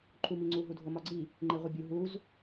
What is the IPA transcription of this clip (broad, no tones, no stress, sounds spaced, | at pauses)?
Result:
ǃʰ u m i ŋ͡ǀ u ɦ u dʱ o m ɒ ɡ͡ǀ i | ŋ͡ǃ e ʁʷ i bʲ u ɦ u z